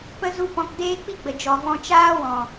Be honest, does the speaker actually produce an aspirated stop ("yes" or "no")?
no